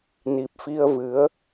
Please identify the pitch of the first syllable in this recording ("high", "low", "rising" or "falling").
low